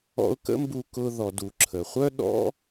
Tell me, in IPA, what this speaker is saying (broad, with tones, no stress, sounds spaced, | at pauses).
ɔ̰˧ ʊ̯ k ə̰˦ m b u˧ k ʊ˧ ð ɔ˨ d u˨ ǁʰ ə˨ χʷ œ˦ ɗ ɔ̰˦